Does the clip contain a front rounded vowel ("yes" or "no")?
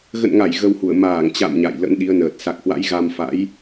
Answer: no